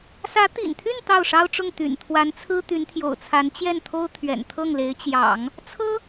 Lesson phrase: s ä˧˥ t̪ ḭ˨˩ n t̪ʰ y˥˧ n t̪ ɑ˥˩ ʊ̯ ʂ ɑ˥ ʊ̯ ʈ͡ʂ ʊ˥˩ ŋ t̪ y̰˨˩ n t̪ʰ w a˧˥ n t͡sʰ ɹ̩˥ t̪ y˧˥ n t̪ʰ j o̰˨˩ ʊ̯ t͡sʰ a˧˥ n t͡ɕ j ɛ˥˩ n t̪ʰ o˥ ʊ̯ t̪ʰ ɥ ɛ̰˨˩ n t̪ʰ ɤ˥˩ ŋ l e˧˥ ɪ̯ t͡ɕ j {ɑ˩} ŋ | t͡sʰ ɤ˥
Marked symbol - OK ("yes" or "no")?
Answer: no